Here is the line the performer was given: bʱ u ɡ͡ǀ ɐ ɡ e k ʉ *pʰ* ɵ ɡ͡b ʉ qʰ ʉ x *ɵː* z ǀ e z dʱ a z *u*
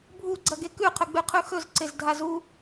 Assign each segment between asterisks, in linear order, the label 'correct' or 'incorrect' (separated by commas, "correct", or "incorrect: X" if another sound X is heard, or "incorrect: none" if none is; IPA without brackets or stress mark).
incorrect: qʰ, incorrect: ɵ, correct